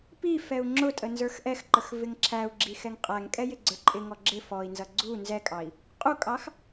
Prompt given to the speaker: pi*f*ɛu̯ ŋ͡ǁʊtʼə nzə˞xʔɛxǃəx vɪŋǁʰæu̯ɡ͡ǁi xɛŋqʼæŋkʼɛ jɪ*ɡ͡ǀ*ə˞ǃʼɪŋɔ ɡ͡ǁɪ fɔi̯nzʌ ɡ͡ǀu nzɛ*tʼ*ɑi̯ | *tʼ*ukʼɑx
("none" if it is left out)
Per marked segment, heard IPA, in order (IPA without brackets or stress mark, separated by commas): f, ɡ͡ǀ, kʼ, qʼ